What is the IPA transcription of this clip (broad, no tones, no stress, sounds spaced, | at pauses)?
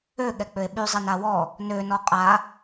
ø ɠ ɛ k͡p ø e̯ ɓ y zˤ ɛ n a w ɔ | n ø n ɔ qʼ a